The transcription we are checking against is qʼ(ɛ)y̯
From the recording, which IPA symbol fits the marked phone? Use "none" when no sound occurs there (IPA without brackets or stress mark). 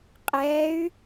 ɛ